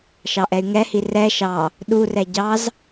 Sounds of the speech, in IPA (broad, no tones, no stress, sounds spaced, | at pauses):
ʃ ɑ ʔ ɛ y̯ ŋ ɛ h i r ɛ ʃ ɑ | ɗ u r ɛ ɟ ɑ z